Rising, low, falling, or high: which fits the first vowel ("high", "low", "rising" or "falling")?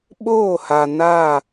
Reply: falling